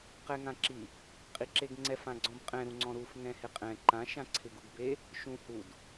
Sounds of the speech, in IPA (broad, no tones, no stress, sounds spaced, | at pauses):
q ɛ ŋ ã ǁ i | qʼ i ǁ e ɡ ŋ͡ǀ ɛ f ã ɡ͡ǀ ɔ̃ b qʼ ɛ̃ ɾ ũ ŋ͡ǀ ɔ̃ ɾ u f ŋ ɛ̃ h ɪ qʼ ɛ̃ ǃ ã ʃ ã ǀʰ ɪ ɡ u ɡ b e | ʃ ũ h u d